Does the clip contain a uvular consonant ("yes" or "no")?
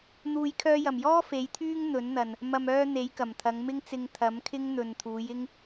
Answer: no